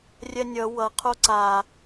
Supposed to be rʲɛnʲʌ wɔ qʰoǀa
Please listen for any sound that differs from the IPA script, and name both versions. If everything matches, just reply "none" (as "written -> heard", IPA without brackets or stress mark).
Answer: ɔ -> ʌ